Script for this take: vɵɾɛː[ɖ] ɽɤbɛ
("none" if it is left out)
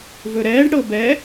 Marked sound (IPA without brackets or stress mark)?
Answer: ɖ